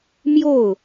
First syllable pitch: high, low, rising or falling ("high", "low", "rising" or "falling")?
falling